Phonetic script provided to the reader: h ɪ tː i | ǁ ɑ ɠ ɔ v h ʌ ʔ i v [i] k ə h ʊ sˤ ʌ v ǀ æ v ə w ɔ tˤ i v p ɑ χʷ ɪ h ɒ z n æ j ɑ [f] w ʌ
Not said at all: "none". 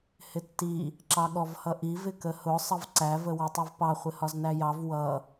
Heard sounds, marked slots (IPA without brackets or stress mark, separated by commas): ɪ, v